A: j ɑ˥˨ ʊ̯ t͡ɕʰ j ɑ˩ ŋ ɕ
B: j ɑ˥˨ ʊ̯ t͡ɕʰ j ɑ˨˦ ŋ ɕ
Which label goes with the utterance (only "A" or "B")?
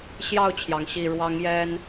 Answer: A